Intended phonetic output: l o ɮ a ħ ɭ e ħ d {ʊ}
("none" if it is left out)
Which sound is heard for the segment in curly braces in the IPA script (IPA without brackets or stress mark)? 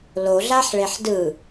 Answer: ɯ